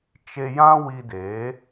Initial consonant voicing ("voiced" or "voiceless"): voiceless